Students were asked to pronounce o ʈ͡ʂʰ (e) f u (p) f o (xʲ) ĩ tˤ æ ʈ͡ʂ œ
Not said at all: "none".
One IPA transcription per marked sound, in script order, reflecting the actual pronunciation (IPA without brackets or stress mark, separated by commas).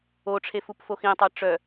e, p, x